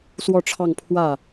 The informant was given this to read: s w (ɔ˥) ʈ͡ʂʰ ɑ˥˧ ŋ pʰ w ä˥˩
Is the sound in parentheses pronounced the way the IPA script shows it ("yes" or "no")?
no